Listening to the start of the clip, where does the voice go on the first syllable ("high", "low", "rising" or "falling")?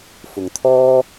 low